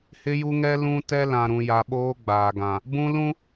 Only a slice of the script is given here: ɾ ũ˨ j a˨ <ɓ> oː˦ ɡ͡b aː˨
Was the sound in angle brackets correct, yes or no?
yes